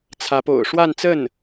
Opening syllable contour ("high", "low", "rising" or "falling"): rising